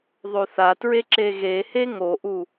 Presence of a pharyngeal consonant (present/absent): absent